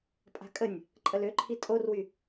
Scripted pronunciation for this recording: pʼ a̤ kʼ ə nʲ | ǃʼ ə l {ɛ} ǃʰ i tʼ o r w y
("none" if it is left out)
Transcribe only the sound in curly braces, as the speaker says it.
ø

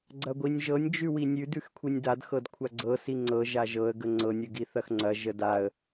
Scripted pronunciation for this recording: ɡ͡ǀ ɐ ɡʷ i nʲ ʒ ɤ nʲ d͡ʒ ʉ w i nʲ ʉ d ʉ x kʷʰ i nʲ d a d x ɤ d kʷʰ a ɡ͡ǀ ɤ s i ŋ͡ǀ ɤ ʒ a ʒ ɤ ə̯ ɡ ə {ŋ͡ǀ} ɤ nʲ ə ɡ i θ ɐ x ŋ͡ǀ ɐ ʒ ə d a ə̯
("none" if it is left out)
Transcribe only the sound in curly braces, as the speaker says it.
ŋ͡ǀ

